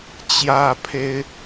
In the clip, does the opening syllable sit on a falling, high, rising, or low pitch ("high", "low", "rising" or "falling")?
high